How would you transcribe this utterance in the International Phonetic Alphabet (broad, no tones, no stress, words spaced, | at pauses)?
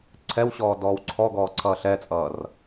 ǀʰɛwɕɔː dɔːwǀʰɔɡɔː ǀʰʌːɬɛt͡sʼʌːr